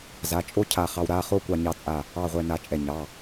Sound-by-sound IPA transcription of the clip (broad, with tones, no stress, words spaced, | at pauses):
za˩˧˩t͡ʃʼo˥˧ cʰa˧˩χɑ˧w ɾa˩˧˩χo˥˧ kʷɑ˧ɲɑ˧t͡sʼa˧˩ | ɑ˥˧ʁʷɛ˧ na˧t͡ʃʼɛ˧˩ɲɑ˩˧˩